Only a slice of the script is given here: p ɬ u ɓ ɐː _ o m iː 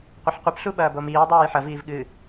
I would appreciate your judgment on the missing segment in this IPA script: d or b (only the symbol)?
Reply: b